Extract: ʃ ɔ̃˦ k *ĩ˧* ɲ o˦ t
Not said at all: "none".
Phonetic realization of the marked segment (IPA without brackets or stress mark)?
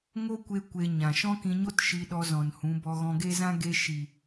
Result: ĩ˧